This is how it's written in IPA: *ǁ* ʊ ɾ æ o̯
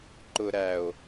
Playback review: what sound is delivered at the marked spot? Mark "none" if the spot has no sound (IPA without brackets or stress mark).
ǃ